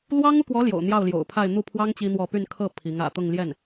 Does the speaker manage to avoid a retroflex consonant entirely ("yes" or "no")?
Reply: yes